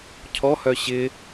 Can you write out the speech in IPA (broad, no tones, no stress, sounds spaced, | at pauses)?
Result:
cʰ ɔ h œ ɕ ɪ